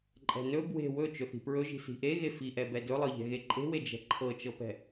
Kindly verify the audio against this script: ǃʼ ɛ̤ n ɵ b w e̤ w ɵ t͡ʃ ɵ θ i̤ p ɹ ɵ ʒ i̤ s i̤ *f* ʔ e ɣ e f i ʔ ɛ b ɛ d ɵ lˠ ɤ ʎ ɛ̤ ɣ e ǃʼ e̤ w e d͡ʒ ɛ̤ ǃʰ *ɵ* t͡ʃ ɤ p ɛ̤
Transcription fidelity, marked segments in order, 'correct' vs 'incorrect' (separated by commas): incorrect, incorrect